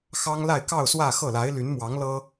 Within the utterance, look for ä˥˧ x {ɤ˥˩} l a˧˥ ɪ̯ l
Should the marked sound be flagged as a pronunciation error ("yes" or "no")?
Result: no